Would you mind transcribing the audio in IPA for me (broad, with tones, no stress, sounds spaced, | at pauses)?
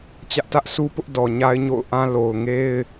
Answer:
t͡ɕ ä˦ ʔ t ä˦ ʔ s u˦ p ʊ˦ ʔ d ɔ˨ ɲ a˦ ɪ̯ ɲ o̰˦˨ ʊ̯ ʔ ã˦ l o˨ ʊ̯ ŋ e˦ ɪ̯